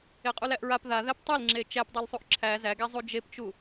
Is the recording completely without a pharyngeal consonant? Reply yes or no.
yes